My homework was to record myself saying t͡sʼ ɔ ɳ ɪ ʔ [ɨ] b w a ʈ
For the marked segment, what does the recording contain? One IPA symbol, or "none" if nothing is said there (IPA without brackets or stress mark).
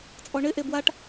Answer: e